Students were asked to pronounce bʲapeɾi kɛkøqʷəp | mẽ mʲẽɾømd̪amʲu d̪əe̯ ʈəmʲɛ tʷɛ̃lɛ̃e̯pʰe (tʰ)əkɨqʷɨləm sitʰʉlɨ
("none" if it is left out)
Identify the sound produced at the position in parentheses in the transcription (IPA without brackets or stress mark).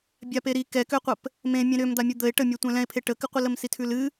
ʈ